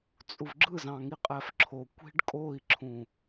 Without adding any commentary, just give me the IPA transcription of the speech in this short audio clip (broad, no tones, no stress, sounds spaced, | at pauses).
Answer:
t͡sʼ u v ɡ͡ǁ ɯ z ɑ̃ ŋ i qʼ æ f ǁʰ o kʷ i̤ ɖ kʼ o i̯ ǁʰ ũ